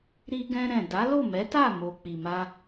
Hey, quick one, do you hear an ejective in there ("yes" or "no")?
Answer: no